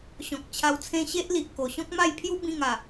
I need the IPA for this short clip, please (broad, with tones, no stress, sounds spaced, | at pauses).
ɕ ɔ̃˨ k̚ t͡ɕʰ a˧ w t͡sʰ ẽ˦ ɕ e˦ ʔ l i˨ ʔ k o˨˩ ɕ ɔ̃˦ k̚ m a˥˧ j pʰ j u˦ b ĩ˥˧ ŋ a˨˩